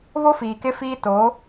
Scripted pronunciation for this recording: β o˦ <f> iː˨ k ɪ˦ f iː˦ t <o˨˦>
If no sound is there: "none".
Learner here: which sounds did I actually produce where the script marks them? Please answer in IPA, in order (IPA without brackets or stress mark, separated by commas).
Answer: f, o˨˦